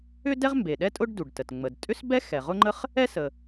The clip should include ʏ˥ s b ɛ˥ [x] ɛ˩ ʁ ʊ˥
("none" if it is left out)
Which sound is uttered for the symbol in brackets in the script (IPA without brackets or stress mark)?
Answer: x